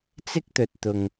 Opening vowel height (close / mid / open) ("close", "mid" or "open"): close